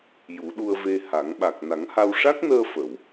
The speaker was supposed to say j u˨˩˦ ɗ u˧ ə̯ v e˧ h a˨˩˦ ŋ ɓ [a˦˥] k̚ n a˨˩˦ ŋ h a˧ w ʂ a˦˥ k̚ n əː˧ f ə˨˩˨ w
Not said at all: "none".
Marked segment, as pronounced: a˨˩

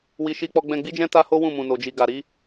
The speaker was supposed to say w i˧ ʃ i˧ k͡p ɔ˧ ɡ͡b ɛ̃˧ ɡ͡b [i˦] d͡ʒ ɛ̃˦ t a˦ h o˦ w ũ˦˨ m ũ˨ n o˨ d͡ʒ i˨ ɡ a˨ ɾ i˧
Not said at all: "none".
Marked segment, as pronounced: i˦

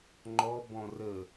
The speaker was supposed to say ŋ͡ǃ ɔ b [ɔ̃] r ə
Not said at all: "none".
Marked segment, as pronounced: ɔ̃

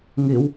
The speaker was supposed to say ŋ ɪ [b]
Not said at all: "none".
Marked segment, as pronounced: w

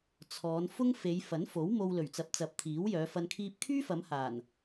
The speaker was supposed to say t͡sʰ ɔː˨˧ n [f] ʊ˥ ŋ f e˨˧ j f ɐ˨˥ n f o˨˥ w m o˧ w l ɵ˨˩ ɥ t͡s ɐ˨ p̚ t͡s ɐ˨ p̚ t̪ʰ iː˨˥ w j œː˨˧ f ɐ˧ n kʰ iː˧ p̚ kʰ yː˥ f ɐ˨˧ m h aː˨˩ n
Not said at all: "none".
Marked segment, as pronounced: f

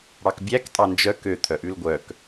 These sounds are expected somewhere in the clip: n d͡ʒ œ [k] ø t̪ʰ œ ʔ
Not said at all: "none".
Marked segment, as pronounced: k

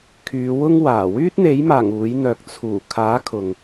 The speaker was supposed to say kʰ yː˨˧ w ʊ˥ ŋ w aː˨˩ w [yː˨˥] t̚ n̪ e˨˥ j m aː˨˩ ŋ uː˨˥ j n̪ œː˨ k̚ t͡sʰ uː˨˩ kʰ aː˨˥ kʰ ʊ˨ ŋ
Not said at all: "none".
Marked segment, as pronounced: yː˥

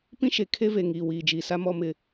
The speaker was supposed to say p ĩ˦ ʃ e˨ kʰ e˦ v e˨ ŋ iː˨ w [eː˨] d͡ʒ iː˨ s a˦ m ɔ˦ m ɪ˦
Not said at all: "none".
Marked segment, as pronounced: iː˨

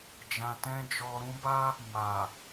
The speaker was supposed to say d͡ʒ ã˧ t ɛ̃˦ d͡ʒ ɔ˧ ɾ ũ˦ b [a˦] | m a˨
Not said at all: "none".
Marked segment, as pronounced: a˦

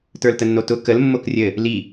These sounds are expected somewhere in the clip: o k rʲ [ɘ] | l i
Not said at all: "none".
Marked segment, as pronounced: ɘ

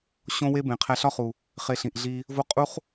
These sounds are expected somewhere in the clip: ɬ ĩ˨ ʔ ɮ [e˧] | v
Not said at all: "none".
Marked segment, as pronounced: i˧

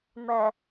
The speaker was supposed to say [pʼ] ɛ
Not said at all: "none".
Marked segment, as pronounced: m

